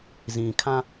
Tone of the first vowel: low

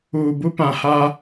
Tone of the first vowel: low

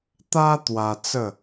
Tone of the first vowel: high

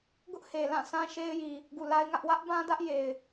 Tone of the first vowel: high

